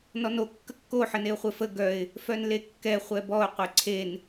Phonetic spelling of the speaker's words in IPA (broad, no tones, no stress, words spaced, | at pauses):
nɔno kːəkːo ħəneʊ̯χʷefə ɡœɪ̯ | fœnlekːɛ χʷɛbɔʊ̯ qʷeǀʰen